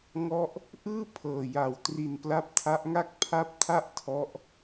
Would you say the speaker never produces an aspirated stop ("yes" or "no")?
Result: no